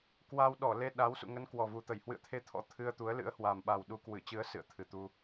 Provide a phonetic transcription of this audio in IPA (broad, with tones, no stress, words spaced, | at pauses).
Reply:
kwa˧wɗɔ˧˩le˧ ɗa˨˦w sṵ˧˨ŋə˨˦n kwɔ˨˩vu˨˩t̪ə˧˩j hwɨ̰˧˨ə̯t̪ʰe˧t̪ʰɔ̰˧˥ t̪ʰɨ˧ə̯t̪u˨˦ə̯lɨ̰˧˥ə̯ hwa˨˩mɓa˨˩w ɗu˨˦kwɨ˧˩t͡ɕɨ˨˦ə̯ sɨ̰˧˨ə̯t̪ʰɨ˨˩t̪u˧